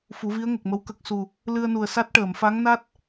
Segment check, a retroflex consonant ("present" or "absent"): present